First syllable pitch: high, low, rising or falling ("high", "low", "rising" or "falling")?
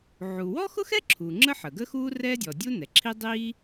low